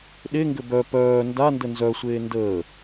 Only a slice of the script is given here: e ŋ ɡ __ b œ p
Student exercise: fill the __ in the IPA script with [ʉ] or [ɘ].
ɘ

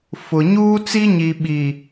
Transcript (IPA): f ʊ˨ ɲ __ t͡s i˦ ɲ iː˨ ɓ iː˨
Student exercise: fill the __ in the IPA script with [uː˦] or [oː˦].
uː˦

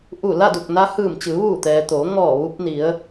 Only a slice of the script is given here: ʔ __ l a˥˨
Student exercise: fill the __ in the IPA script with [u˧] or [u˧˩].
u˧˩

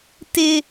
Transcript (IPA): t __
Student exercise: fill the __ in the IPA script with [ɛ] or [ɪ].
ɪ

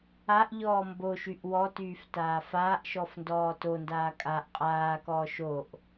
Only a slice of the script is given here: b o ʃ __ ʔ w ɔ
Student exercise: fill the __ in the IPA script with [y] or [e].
y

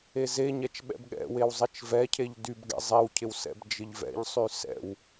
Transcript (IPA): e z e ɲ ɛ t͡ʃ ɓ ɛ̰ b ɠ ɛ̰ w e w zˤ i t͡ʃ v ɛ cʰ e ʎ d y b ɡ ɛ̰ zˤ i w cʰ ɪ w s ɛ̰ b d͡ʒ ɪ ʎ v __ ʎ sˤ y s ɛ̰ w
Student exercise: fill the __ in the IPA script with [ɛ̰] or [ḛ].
ɛ̰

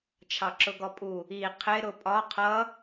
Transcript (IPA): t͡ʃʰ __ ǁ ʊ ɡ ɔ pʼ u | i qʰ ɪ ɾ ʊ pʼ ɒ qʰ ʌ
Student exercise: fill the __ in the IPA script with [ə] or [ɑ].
ɑ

